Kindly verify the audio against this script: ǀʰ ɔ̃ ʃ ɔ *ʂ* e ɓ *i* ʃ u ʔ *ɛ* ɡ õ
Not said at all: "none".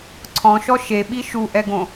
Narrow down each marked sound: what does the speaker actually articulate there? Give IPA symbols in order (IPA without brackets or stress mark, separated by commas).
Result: ʃ, i, ɛ